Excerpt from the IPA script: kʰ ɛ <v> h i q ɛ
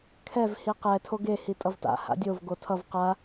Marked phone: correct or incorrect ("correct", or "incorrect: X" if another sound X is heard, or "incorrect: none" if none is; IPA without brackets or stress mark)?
correct